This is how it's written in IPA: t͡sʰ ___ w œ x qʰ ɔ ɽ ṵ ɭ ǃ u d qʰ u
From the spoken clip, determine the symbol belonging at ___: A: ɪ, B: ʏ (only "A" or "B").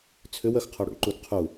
B